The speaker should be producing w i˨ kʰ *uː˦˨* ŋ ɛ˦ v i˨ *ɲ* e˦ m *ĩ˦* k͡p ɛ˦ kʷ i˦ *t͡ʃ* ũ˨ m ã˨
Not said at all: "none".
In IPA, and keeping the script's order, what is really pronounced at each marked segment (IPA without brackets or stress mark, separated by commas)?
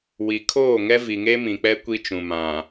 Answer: oː˦˨, ŋ, ĩ˨, t͡ʃ